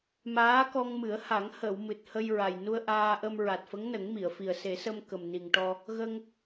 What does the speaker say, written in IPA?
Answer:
m aː˧˥ k ɔ˧ ŋ m ɨ˨˩˦ ə̯ h a˨˩˦ ŋ h ə˨˩˨ w m ɨ˨˩ t̚ h ə˧ j ɹ a˨˩ j n u˧ ə̯ ʔ aː˧ ʔ ə˧ m ɹ a˨˩ t̚ f ə˧˥ ŋ n ə˨˩˦ ŋ m i˨˩˨ ə̯ f i˨˩ ə̯ s e˨˩˦ s ə˧ m k ə˨˩ m n i˨˩ ŋ ʈ ɔ˧ | ɣ ə˧ ŋ

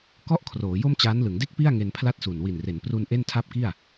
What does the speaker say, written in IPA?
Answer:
k ɔ˦˥ ʔ kʰ r oː˩˦ j o˥˩ m t͡ɕ aː˦˥ n l ɯ˩˦ ŋ d e˥˩ k̚ p i˥˩ a̯ ŋ e˧ n pʰ l a˥˩ t̚ s u˨˩ n w i˨˩ n r e˩˦ n p r u˧ n ʔ e˥˩ n tʰ a˥˩ p̚ k i˥˩ a̯

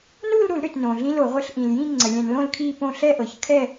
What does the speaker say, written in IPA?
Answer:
n u˥˧ l ɾ u˧˩˧ l ɾ ʏ˩ t n õ˩ ɮ ĩ˥ l o˧˩˧ ʁʷ ɛ˥˧ ɬ ʔ ĩ˩ l j ĩ˥˧ ŋ͡ǀ ə˩ lʲ ɛ̃˧˩˧ n l õ˥˧ l kʰ i˥˧ p õ˥˧ ɬ ɛ˥˧ ʔ ɤ˩ ç kʰ ɛ˥˧

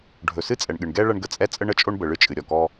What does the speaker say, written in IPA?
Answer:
ɖʱ ɵ˩ s ɨ˥ t͡sʼ ɛ˩ ɳ ɠ ɨ˩ ɳ ɡ ɛ˥ ɭ ɐ˥ ɳ ɡ ə˩ t͡sʼ ɛ˥ t͡sʼ ə˥ ɳ ə˥ t͡ʃʼ o˥ ɳ b ə˩ ɭ ɨ˥ t͡ʃʼ ɨ˩ ɾʲ ɔ˩ k ɔ˥

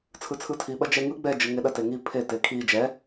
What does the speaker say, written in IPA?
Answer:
t͡sʰ ɯ t͡sʰ ɯ tʰ i ɓ ɐ d͡ʒ ɛ ŋ ɯ ɡ͡b ɛ d͡ʒ ɯ ŋ e ɗ ɐ t e ŋ i pʰ e t e kʰ i d͡ʒ ɛ

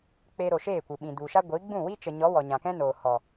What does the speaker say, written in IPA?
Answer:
k͡p e˧ ɾ o˨ ʃ eː˦˨ kʷ ɨ˨ ɓ ĩ˨ d u˨ ʃ a˦ ɡʷ i˨˦ ɡ͡b ũ˦˨ w i˦ t͡ʃ ə˨ ɲ ɔ˨˦ w ɔ˨ ɲ ã˨ k ɛ̃˦ n oː˨ h ɔ˨

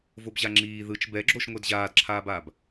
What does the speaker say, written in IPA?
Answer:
v o b ʑ a ŋ͡ǁ iː ð ɯ t͡ʃ b ɛ ɡ͡ǁ o ʃ ŋʷ ɛ d ʑ aː d ǁʰ aː b aː b

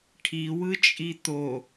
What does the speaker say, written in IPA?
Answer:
ʈʰ i w ɯ t͡ʃʼ i t̪ o

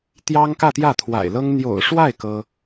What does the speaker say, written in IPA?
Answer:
t̪ j ɑ˥ ŋ k ä˥˧ t̪ j ä˥˩ t̪ʰ w a̰˨˩ ɪ̯ l ɤ˥ ŋ n̪ j o̰˨˩ ʊ̯ ʂ w a˥˩ ɪ̯ k ɤ˥

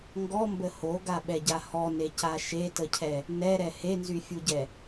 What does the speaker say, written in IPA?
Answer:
ŋ ɡ ɔ m b ə h o ɡ a ɓ ɛ ɟ a h ɔ n e c a ʃ e t ə cʰ ɛ | n ɛ ɾ ɛ h e n z y fʲ u ɟ ɛ

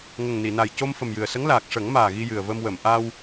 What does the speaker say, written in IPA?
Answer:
ŋ ə˨˩ ŋ n i˨˩˨ n a˨˩ j c o˧ m f ə˨˩ m j ɨ˨˩ ə̯ s ə˧˥ ŋ l aː˨˩ k̚ ʂ ə˨˩˦ ŋ m aː˨˩ ɣ i˧ j ɨ˨˩ ə̯ v ə˧ m w ə˨˩˨ m ʔ a˧ w

